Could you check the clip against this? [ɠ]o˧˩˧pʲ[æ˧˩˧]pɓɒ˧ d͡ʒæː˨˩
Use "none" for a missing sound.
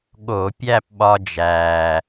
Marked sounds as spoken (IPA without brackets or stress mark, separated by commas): ɠ, æ˥˧